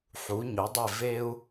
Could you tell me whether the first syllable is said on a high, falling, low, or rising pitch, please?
rising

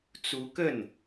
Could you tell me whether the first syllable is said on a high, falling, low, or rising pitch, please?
rising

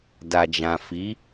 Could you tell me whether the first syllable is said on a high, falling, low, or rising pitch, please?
low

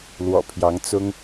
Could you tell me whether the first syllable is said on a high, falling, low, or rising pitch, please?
low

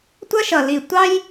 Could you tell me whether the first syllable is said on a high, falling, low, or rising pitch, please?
high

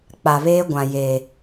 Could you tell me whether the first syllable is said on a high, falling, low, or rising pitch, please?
low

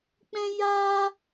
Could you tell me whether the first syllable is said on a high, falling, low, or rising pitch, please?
high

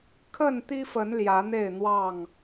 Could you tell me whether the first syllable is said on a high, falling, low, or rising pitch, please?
falling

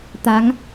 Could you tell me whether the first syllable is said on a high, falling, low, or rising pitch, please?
rising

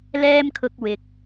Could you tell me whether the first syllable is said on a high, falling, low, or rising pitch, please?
high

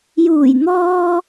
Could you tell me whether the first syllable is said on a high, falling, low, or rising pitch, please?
low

